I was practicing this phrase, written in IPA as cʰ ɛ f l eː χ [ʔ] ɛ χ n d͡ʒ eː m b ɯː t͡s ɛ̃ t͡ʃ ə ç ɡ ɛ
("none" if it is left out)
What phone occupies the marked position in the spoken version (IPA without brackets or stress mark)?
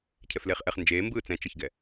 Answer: ʔ